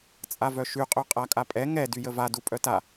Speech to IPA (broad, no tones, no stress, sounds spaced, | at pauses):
t͡sʼ a v œ ʃ y qʼ ø qʼ a kʼ a pʼ ɛ ŋ ɛ d y j ə v a d u pʼ œ t a